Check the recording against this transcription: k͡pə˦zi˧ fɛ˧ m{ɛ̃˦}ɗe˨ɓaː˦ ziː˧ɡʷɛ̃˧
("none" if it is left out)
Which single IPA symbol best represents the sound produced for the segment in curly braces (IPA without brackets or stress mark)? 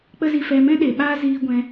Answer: ɛ̃˦